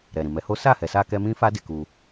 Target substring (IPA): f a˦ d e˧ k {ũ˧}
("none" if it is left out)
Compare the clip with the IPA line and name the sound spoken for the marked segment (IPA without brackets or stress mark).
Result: u˧